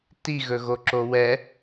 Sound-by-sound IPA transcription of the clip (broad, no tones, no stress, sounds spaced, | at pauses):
t i ɣ ɵ ɣ o ǁ o w ɛ